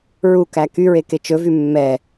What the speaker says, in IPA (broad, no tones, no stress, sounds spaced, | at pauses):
ɹ u k æ k y ɹ e k e t͡ʃ ɵ v y mː ɛ